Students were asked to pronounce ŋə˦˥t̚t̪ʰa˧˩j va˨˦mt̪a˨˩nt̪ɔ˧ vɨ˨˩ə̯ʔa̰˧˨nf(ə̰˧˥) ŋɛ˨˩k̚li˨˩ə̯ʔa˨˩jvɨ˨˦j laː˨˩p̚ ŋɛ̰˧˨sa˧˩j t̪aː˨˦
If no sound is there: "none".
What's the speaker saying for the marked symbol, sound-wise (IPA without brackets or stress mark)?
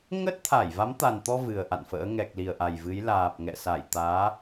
ə̰ː˧˥